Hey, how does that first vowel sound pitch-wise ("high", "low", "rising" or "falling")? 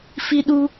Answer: high